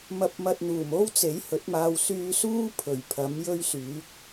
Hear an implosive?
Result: no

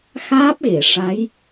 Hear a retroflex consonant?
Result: yes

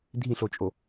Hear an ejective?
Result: yes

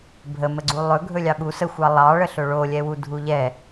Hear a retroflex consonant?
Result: yes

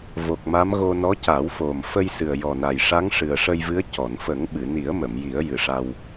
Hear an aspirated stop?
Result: no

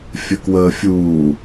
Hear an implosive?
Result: no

